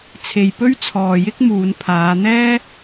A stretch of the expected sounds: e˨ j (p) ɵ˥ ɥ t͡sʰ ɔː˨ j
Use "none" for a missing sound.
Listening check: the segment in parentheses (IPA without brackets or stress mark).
p